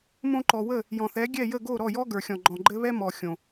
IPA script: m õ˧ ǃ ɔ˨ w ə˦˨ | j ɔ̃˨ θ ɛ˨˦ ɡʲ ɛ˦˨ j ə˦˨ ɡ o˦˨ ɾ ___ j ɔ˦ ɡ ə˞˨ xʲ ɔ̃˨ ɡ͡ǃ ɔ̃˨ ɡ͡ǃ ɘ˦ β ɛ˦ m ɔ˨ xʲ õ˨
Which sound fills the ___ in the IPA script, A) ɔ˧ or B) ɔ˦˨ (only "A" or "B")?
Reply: B